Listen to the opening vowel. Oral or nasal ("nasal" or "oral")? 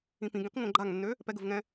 nasal